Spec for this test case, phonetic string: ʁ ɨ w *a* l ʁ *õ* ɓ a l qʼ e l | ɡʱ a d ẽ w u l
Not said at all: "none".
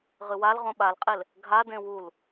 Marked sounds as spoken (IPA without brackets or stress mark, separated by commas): a, õ